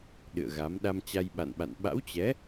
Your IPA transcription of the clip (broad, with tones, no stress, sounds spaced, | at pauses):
ɗ ɨ̰˧˨ ə̯ ɣ a˨˦ m ɗ a˧ m t͡ɕ a˧ j ɓ a̰˧˨ n ɓ a̰˧˨ n ɓ a̰˧˥ w t͡ɕ ɛ˨˦